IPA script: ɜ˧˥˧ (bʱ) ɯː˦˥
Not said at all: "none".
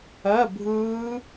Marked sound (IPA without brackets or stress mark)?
bʱ